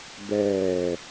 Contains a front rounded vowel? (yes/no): no